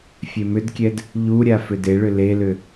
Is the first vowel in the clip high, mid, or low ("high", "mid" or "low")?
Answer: mid